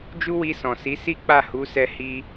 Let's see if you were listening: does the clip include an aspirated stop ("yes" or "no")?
no